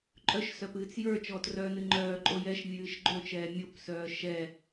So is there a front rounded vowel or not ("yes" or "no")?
yes